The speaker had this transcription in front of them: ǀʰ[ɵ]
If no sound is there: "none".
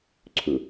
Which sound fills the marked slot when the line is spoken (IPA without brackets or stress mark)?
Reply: ɵ